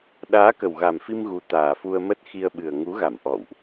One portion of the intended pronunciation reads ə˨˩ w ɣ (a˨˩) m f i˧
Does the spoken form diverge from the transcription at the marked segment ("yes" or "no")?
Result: no